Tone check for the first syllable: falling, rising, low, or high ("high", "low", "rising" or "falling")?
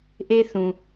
high